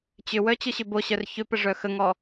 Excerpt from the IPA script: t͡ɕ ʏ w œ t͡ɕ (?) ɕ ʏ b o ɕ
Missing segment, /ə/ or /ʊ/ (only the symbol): ʊ